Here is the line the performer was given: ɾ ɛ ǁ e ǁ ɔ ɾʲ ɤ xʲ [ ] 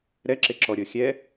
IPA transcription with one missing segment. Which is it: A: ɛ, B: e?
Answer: A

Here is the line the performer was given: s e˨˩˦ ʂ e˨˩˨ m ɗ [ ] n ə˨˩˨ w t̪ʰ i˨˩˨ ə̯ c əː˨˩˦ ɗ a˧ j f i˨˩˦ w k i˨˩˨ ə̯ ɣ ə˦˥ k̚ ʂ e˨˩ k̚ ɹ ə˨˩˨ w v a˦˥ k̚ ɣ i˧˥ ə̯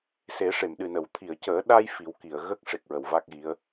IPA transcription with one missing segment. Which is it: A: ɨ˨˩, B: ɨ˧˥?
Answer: A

